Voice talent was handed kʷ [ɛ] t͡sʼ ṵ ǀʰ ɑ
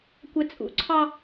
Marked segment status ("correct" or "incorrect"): correct